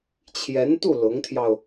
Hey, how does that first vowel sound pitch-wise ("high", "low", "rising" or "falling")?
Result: rising